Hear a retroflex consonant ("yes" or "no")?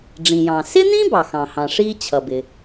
yes